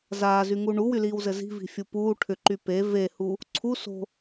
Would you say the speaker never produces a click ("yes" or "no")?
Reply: no